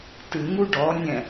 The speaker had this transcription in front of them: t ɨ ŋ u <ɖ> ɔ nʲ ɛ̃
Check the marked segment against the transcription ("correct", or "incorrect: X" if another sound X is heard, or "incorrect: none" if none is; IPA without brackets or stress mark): correct